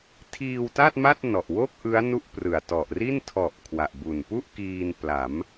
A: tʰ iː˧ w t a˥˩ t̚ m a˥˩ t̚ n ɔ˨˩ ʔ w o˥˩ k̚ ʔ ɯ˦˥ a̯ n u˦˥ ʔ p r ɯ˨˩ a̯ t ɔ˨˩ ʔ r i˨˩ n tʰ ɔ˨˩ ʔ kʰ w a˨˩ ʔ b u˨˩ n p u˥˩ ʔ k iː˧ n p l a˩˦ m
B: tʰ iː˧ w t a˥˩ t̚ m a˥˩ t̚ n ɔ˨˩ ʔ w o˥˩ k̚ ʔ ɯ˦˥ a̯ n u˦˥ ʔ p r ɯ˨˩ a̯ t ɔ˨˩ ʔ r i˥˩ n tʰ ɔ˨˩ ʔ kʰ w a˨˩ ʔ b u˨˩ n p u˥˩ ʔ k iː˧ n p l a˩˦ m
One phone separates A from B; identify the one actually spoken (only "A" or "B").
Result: B